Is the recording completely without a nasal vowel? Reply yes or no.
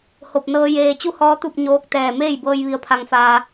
yes